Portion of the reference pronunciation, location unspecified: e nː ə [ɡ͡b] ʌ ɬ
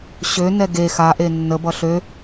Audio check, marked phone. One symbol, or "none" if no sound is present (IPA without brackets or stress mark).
b